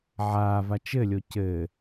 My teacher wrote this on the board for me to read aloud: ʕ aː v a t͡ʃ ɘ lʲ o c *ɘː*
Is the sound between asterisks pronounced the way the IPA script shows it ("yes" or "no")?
yes